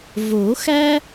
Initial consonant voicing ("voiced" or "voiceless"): voiced